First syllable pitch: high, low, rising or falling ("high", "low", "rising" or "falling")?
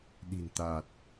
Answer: low